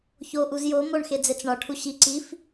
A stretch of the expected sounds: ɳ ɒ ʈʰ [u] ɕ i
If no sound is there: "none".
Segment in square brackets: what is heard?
u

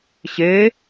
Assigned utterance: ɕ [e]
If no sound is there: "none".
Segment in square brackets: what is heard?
e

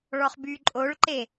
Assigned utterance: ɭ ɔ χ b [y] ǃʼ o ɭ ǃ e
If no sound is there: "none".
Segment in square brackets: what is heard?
y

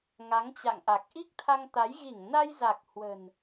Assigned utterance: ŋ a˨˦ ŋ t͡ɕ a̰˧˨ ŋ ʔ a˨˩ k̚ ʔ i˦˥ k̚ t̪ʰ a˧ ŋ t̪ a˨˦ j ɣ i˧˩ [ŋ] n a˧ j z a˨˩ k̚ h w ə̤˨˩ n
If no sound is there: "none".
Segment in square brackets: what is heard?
ŋ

